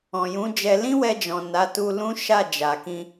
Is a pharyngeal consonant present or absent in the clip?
absent